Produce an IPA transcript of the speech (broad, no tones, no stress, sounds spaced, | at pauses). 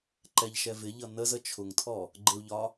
ǃ ɛ ʎ ʃ ɛ v ɪ ʎ ʌ n ə z ə t͡ʃʰ ʊ ŋ tʰ ɔ | ɡ͡ǃ ɪ u̯ ʎ ɒ